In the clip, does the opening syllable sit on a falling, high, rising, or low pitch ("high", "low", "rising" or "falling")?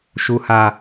low